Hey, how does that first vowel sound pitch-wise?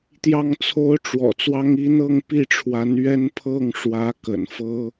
falling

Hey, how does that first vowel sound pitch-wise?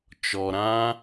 low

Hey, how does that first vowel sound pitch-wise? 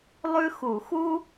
high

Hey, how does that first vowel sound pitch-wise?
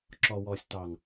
low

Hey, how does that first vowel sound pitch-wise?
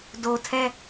low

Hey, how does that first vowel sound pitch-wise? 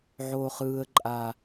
high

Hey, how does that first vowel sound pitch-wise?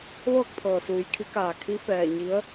falling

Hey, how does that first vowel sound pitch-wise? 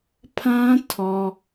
high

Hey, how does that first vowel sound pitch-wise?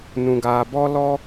low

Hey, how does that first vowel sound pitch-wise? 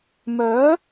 rising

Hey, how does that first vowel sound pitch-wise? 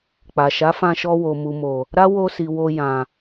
low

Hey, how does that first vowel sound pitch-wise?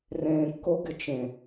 low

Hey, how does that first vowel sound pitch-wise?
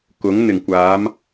rising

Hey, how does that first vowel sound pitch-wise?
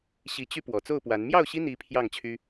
rising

